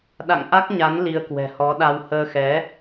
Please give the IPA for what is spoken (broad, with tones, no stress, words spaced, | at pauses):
ɗa̰˧˨ŋ ʔa˦˥k̚ ɲa˨˦n li˧ə̯kwɛ̤˨˩hɔ˨˦ɗa˧w həː˧xɛ˨˦